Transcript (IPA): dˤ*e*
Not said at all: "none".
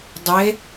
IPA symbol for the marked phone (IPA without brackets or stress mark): e